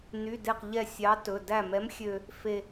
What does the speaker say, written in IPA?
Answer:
n y˩˧˩ d e˧˩ q ʎ ɛ˧˩ sʲ ɑ˨˥ t ɵ˩˧˩ d æ˧˩ m ɛ˨˥ m xʲ ø˧ | f e˧

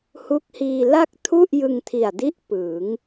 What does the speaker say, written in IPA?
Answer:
h u˦˥ k̚ h iː˧ l a˥˩ k̚ tʰ u˥˩ ʔ j ɯ˧ ŋ tʰ i˨˩ a̯ d i˦˥ ʔ p ɯː˩˦ ŋ

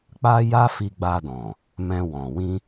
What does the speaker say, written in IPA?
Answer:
k͡p a˦ j a˦ f i˧ ɡ͡b a˧ d ɔ̃˨ | m ɛ̃˧ w ɔ̃˨ w ĩ˧

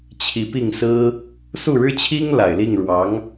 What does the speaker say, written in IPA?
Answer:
t͡ɕʰ i˧˥ p i˥˩ ŋ s ɹ̩˥ | s u˥˩ ɻ ɻ̩˥ t͡ɕʰ i˥ ŋ l a˨˩ ɪ̯ l i˥˩ ŋ ɻ w ɑ˧˥ ŋ

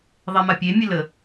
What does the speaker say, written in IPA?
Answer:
ðˤ e m a pʲ e mʲ ə l ə

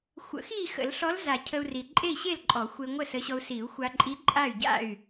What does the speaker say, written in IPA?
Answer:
xʷ ə̰˨˩˦ x i˥˨ x ə̰˨˩˦ l ɬ ɔ˧˥ l z a˨˩˦ cʰ ə˧ u̯ r i˨˩ ǃʼ e˥˨ i̯ ɕ e˥˨ l ǃʼ ɔ˨˩˦ xʷ e˧ ŋʷ ə˥˨ s ə˧˥ ɕ ɔ˧ u̯ s i˨˩˦ u̯ xʷ a˧ ǃʼ i˧˥ ǃʼ a˥˨ y̯ ɟ a̰˥˨ y̯

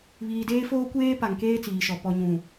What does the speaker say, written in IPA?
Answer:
β iː˨ d eː˦ f oː˦ kʷ eː˦ p a˨ ŋ k eː˦ t͡s iː˨ ʃ ɔ˨ p ɔ˨ ɲ ũ˨

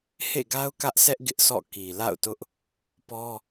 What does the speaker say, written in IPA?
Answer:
h ḛ˦˨ ɡ a˦ ʊ̯ k ä˦ ʔ sʰ ɛ˦ ʔ ɡ ɪ˦ ʔ sʰ ɔ̰˦˨ k i˨ l a̰˦˨ ʊ̯ t ʊ˦ ʔ | p ɔ˦

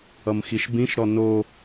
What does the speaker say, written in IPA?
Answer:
ʌ m x i ʃ b ĩ ʃ ɾ ɔ n o

